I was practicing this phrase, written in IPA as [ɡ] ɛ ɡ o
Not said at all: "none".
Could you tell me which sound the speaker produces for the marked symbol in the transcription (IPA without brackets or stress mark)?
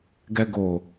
ɡ